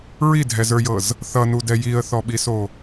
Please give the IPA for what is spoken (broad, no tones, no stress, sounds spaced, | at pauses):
ɹ i dʱ ɛ z ə˞ j ɤ z | θ ʌ n u d ɛ j i ə̯ θ ɔ ɓ i s o